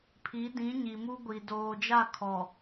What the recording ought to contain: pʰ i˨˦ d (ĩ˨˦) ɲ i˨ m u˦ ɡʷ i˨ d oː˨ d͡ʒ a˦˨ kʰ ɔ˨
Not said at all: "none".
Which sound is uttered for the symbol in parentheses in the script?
ĩ˨˦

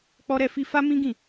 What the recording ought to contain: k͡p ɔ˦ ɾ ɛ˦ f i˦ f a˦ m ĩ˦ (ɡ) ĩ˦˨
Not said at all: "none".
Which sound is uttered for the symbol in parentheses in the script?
ɡ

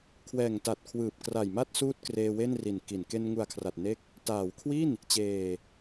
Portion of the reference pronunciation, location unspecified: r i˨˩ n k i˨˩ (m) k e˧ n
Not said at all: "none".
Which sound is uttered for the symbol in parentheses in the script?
n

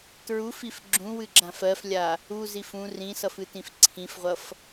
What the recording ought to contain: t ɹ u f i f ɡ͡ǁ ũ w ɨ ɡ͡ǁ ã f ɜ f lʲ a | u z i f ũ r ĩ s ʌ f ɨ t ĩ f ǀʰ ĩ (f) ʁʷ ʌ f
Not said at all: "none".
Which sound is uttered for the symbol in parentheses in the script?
f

